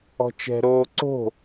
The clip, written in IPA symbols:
ɔ̤t͡ʃɛ̤ɾoː ǀo̤

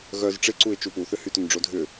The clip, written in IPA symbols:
ɣœz ʈ͡ʂɪ ǀuɪ̯t͡ʃupuθʏ hytʊnɖ͡ʐodʱʏ

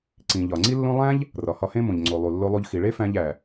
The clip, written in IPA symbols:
ǀĩ˩ʎɒ˩ŋ͡ǀi˥lːõ˥ lˠæ̃˥ʎ | rɒ˩hɒ˧hẽ˥mõ˩ʎ ŋ͡ǀo˩lˠu˩ lːo˧lˠu˧ʎxi˩ ɭe˥fæ̃˧ʎ æ˩

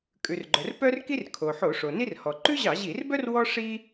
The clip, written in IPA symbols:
kʼʉ˩rɡ͡ǃœ˩r pœ˥rki˥r kʰo˩ ħo˧˩˧ʂo˩ni˥r hɔ˩ ǃʉ˥ʑɑ˧˩˧ʑi˧˩˧rbœ˥r wɔ˥ ʂi˥

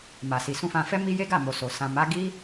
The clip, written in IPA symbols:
ma˨si˨sũ˧fã˧ fɛ˦mi˦ je˦ɡa˦˨mo˨so˨ sã˨ma˨˦ ɡi˦

